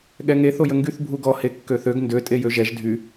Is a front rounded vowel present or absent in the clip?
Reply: present